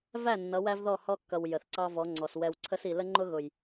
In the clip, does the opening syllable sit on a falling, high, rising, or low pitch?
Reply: falling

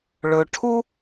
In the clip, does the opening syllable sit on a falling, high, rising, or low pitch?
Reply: low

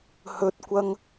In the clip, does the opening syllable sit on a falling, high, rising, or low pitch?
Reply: high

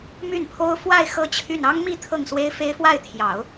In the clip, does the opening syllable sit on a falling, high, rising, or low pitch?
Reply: falling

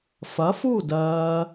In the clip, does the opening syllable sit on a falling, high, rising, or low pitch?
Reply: rising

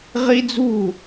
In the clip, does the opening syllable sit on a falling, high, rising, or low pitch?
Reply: high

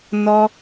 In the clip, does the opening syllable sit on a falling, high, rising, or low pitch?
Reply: high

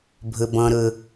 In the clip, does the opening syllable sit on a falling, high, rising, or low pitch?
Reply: low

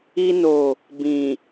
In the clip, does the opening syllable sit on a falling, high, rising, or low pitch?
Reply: high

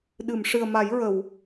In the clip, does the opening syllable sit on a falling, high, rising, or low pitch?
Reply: low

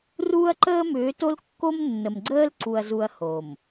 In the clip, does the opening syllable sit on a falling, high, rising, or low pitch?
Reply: high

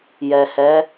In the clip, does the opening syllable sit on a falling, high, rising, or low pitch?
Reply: low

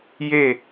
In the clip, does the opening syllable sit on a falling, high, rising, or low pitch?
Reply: falling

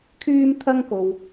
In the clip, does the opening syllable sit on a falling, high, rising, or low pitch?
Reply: high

